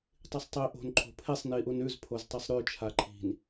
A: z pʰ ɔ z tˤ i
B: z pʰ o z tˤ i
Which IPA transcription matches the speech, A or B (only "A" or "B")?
B